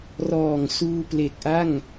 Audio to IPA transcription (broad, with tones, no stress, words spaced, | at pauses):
rɔː˨˩ŋsuː˧ple˨˩k̚ʔa˥˩ŋ